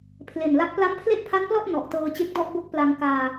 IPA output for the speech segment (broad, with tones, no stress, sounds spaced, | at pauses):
pʰ l e˨˩ n l a˦˥ k̚ p l a˦˥ m pʰ l e˥˩ ʔ pʰ a˦˥ n p l ɔ˥˩ ʔ n ɔ˨˩ ʔ t ɤː˧ t͡ɕ e˦˥ k̚ d ɔ˥˩ ʔ b o˥˩ k̚ p l a˧ ŋ k aː˧